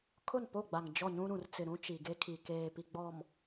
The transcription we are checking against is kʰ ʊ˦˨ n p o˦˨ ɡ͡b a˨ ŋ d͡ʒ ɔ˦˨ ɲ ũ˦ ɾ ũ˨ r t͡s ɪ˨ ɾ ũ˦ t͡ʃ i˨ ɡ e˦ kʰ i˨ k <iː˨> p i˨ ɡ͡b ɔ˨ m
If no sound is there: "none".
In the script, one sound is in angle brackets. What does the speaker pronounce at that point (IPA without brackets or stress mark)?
eː˨